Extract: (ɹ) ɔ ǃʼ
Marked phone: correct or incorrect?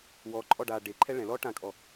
incorrect